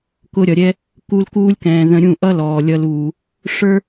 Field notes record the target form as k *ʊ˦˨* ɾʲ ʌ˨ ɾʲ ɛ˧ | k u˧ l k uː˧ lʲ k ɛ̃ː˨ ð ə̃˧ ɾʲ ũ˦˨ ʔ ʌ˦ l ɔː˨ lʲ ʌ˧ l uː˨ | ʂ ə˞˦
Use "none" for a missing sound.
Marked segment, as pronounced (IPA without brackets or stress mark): ʊ˧